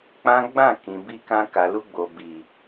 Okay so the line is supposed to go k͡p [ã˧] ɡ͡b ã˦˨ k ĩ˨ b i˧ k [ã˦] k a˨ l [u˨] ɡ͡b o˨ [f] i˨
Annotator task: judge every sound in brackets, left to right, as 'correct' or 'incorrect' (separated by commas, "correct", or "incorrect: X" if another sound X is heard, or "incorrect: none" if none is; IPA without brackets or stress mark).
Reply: incorrect: ã˦, incorrect: ã˧, incorrect: u˧, incorrect: b